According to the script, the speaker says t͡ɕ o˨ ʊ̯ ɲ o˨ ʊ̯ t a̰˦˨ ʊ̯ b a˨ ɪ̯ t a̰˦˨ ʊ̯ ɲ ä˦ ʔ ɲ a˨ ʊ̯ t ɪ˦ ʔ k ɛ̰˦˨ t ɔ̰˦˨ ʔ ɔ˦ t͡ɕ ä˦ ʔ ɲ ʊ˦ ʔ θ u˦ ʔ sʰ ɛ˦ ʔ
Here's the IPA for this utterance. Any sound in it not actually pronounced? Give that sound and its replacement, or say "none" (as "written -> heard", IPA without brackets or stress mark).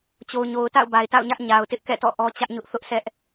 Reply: u˦ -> ʊ˦